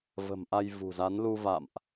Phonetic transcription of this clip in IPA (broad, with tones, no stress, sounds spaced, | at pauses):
v ə̤˨˩ m ʔ a˧ j v ṳ˨˩ z a˨˦ n l u˧ v a̰˧˨ m ʔ